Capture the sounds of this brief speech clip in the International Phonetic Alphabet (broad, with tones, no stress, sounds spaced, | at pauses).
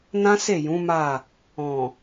n ã˦ s e˦˨ j ũ˨˦ m a˦˨ | ɔ̃˨